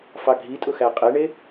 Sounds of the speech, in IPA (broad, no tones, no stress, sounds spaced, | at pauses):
f ɑ ɡʱ i tʼ ʊ x æ qʼ e ɳ e